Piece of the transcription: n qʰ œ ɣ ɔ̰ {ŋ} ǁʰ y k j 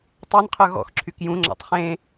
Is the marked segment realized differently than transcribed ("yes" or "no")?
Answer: yes